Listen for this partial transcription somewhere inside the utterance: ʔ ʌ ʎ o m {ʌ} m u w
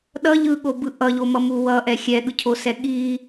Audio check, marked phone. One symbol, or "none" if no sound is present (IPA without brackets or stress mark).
ʌ